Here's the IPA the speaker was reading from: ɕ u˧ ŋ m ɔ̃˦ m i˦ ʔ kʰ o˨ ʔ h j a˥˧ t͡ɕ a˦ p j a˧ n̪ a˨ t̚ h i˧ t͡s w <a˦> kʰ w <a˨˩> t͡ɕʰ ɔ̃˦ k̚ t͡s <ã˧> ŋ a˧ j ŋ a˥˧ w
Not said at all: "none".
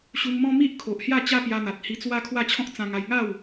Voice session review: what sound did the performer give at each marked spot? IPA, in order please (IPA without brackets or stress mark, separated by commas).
a˦, a˥˧, ã˧